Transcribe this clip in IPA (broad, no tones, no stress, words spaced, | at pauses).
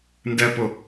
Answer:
ndɛpʊ